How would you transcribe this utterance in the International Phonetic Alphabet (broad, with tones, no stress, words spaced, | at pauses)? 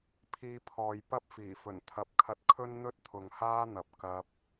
pʰiː˧pʰɔː˨j pɐ˥p̚fiː˨˩fɵ˨˩n t̪ʰɐ˨˥p̚kʰɐ˧t̚kʰɵ˥n n̪ɵ˥t̚t̪ʰʊ˨ŋhaː˥ n̪ɐ˨p̚ kɐ˧p̚